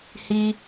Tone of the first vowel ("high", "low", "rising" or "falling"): high